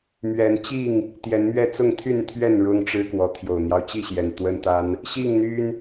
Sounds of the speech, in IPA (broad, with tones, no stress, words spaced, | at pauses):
mɥɛ˨˦nt͡ɕi˥˨ŋ | t̪jɛ˨˦nmɥɛ˥˨ t͡sʊ˥˨ŋt̪ʰy˥˨nt̪ʰɥɛ˥˨n ɻʊ˦ŋ ʈ͡ʂɻ̩˦kwɔ˨˦ t̪ʰjo˨˩ʊ̯n̪jɑ˦ʊ̯t͡ɕi˥˨ɕjɛ˨˩n t̪wə˦nt̪a˦n | ɕi˥˨ŋn̪y˦n